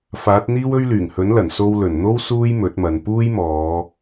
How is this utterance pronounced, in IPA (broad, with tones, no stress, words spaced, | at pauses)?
faː˨˥t̚n̪iː˥wɵ˥ɥ lyː˨˩ŋhɵ˨˥nlɐ˨˩n so˧wlɵ˨˩nn̪o˥w suː˥jmɵ˨˥t̚mɐ˨n puː˥jmɔː˨˧